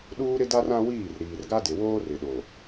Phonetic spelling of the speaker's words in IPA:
ɗ uː˦ ɾ ɪ˦ d a˦ r ã˦ w iː˦˨ r ɾ iː˨ r ɡ a˦ d ɪ˨ w oː˦ r ɪ˨ ɗ o˨

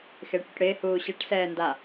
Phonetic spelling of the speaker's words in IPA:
x ɪː ʈ ɽ u ʈ ɽ ɪː h uː ɕ ɛ ʈ s ɛː n d a

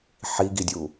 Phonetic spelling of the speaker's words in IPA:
ħ i ɡ i dʲ u

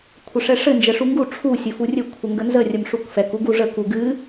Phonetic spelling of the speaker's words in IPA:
kʷʰ ɘ ʂ ɛ ʂ ɘ n d͡ʒ ɛ ʂ u ŋ ɡ u ʈ͡ʂʰ u sʲ ɘ f u rʲ ɘ kʷʰ ə ŋ ɡ ə n z ə rʲ ə m ʂ u k f ɛ k u ɡ u ʐ ə k u ɡ ɨ

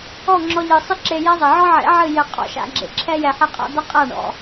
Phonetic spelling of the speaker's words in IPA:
ɔ˦˨ ŋ͡ǁ ɔ˧ ʎ ɨ˨ sˤ ɨ˦ ǁ e˧ j ɛ˦ zˤ ɘ˨ ʕ ɔ˦ ʕ ḛ˨˦ ʕ ɨ˦˨ j ɘ˧ qʼ ɔ̰˨ ʃ a̰˧ ɡ͡ǁ ḛ˨ ǁʰ ɛ˦ j ɛ˧ ħ ɛ˦ qʼ a̰˦ d̪ ɐ˦ qʼ a˦˨ ɳ ɔ̰˨

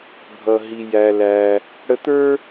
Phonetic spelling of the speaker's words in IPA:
bʱ ʌ˩ ɦ i˩ j æ˩ l æ˩ | ɽ ə˧ t̪ ə˞˥

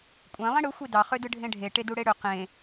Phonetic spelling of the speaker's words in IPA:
kʷʼ ẽ lˠ ĩ ɽ ɯ xʷ i d ɑ χ ø d ɯ ɖʱ ẽ ɖʱ e ʈ e d u ɽ e ɽ ø q ẽ

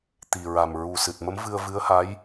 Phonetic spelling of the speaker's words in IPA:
t̪ i˨˩ ɹ a˨˩ m ɹ u˨˩ s ɨ˨˩ t̚ m ə˧˥ m v ɨ˧ ə̯ v ɨ˧˥ ə̯ h a˧˥ j

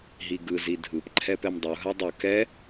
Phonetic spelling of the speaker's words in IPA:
ɦ i ɡ ɯ z i dʱ ɯ p ǃʰ ɛ p ɛ m dˤ u ɦ a dˤ ɯ k ɛ

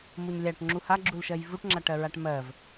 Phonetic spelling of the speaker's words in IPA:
m u ɲ lʲ a ʈ ŋ͡ǁ u h a ɡ͡ǁ u l ʃ ɜ j v u ʈ ŋ͡ǁ a ʈ ɜ ɹ a ʈ m ɜ v

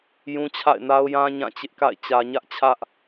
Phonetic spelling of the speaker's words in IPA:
j ũ˦ t͡ɕʰ a̰˦˨ ɪ̯ n a˦ ʊ̯ j ã˦ ɲ ã˦˨ t͡ɕ ɪ˦ ʔ k a̰˦˨ ɪ̯ t͡ɕ ä˨ ɲ ä˦ ʔ t͡ɕʰ ä˦ ʔ

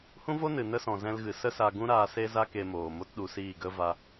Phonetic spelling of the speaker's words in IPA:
h ũ˦ v o˦ n ɨ˨ n ə˦ s ɔ̃˨ z ɛ̃˧ l ɣ ɨ˨ s ə˦ s a˧ ɡ ũ˦ ɾ aː˧ s e˦ z a˦ k e˧ m oː˨ m o˦ t ɗ u˧ s iː˦˨ ɡ ə˦ v a˧

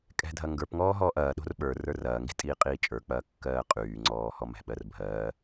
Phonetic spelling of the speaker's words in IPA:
kʼ ɛ̤ dʱ ɐ ŋ ɡ ə˞ p ŋ ɔː ɦ ɔː ʔ ɐː ɗ o̤ r ɓ ə˞ r ə˞ r ɐː ŋ ɡ i̤ tʼ iː qʼ iː t͡ʃʼ ə˞ k͡p ɐː kː ɜː qʼ yː ŋ͡ǀ ɔː h ɔ m ɛ̤ ɓ ɜ r bʱ ɜː

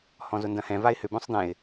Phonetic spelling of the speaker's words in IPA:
h ɔ̃ z ʊ n d ɐ̃ h ɛ̃ v a ɪ̯ h ʏ b œ̃ sˤ d̪ ɛ̃ ɪ̯

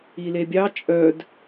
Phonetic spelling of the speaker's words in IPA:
i l e bʲ ɑ t͡ʃʼ œ d

